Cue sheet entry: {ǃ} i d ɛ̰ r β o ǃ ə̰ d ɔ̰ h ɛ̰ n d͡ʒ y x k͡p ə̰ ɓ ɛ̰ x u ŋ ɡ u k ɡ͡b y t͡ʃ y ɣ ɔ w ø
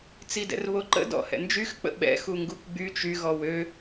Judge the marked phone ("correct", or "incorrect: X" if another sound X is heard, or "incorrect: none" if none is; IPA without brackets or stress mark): incorrect: t͡s